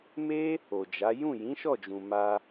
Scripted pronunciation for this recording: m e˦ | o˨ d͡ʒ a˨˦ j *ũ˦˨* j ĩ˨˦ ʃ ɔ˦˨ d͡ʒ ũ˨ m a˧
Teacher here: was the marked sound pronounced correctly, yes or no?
yes